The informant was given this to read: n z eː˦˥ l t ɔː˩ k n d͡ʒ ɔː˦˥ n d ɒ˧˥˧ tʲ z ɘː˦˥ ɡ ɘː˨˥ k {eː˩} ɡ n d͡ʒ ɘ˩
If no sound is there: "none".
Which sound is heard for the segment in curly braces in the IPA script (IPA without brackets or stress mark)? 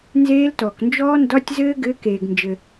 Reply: eː˩